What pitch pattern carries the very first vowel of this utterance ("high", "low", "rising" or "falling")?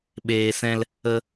low